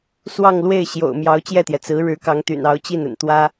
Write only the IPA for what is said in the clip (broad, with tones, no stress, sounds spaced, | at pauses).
s w ɑ˥˧ ŋ l w e˥˩ ɪ̯ ɕ j o̰˨˩ ʊ̯ m j ɑ˧˥ ʊ̯ t͡ɕ j ɛ˥˩ t̪ j ɛ˩ t͡s ɹ̩˧˥ ɻ ɻ̩˧˥ k ɑ˧˥ ŋ t̪ y̰˨˩ n ɑ˧˥ ʊ̯ t͡ɕ i˥˩ n ə̰˨˩ n t̪ w ä˥